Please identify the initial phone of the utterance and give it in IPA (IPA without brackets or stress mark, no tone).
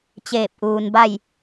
t͡ɕ